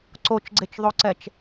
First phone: ǀ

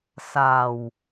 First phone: s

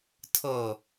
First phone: tʰ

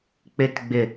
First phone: k͡p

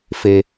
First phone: f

